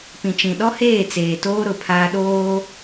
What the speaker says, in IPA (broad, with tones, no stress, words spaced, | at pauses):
pĩ˨t͡ʃĩ˨ɗɔ˦heː˦˨ t͡seː˨toː˦ ɾʊ˨pʰaː˦ ɗoː˦